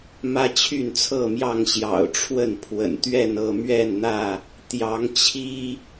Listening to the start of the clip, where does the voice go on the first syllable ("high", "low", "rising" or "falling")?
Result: high